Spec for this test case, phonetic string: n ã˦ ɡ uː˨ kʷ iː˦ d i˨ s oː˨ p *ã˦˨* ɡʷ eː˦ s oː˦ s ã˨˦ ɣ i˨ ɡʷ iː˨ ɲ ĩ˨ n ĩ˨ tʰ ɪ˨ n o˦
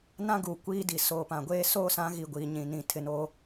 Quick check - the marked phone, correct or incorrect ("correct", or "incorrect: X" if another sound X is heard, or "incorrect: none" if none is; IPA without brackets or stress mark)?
incorrect: ã˨